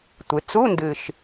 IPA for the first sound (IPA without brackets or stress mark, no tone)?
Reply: tʷ